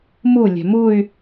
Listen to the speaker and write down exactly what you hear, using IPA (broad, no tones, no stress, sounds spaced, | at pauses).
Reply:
m u lʲ ɛ̤ m u y̯